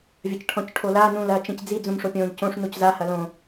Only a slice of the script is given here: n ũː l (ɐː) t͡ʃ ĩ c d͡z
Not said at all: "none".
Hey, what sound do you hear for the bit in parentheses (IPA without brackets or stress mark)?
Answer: ɐː